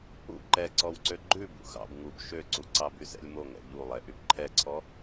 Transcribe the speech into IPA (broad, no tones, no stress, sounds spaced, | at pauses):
ṵ ǃ ɛ ǀ ɔ w ǀ ø ɡ͡ǃ ʉ b ṵ x ɑ̰ b ŋ u b ʃ ø ǀ u ǀ ɑ b y s ɛ̰ lʲ m o ŋ ɛ̰ ʎ u lˠ ɛ ʔ y b ǃʰ ɛ ǀʰ ɔ